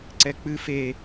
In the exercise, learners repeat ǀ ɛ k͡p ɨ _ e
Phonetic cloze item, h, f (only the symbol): f